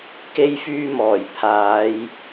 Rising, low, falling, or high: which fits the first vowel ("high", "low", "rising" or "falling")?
high